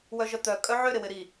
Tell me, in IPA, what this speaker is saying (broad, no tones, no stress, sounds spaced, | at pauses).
w œ ʒ œ t̪ œ kʼ œ ʕ ʏ ɾ ɪ w ɪ ɾ i